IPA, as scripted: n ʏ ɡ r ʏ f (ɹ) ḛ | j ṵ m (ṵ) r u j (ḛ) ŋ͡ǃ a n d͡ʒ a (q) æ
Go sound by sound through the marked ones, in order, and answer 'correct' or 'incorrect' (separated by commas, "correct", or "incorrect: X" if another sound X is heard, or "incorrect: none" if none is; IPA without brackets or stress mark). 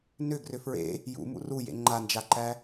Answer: correct, correct, correct, incorrect: ǃ